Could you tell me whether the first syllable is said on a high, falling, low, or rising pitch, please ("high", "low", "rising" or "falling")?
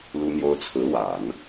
high